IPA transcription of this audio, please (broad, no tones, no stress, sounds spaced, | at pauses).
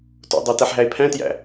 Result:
t o̰ dˤ æ t æ ħ ɦ æ e̯ pʰ æ̃ t j æ̰